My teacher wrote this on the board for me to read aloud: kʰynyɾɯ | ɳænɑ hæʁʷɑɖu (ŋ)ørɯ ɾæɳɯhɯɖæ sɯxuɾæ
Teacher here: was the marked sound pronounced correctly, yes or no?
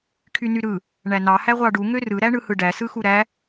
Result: yes